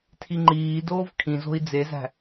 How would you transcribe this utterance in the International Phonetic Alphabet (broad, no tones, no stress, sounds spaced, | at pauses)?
tʰ i ŋ͡ǃ iː d oː v kʰ ĩ z o̤ i̯ d͡z e z æ̤